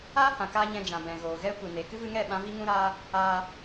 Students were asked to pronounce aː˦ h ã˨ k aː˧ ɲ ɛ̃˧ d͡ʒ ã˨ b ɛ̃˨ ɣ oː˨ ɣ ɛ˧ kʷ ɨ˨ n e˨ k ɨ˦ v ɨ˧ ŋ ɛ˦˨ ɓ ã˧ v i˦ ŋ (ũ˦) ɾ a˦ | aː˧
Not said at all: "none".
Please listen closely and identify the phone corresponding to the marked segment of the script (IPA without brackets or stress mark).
ũ˦